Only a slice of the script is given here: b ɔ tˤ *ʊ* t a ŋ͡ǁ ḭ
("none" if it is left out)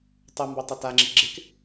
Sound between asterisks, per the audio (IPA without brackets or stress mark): ʊ